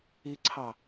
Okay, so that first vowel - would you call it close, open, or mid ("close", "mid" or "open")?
close